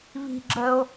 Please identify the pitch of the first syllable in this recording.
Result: high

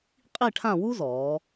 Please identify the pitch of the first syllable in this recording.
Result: falling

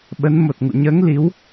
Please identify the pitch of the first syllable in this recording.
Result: rising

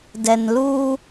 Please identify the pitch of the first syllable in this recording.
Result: low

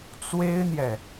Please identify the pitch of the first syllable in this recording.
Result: high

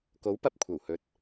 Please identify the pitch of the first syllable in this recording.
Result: rising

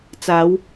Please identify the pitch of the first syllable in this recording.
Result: rising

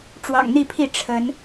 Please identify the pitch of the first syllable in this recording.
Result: low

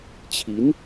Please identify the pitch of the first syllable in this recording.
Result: rising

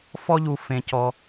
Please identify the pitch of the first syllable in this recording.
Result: high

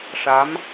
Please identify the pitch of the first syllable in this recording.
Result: rising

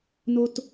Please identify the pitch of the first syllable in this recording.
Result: high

